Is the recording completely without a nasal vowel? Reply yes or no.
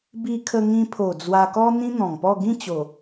no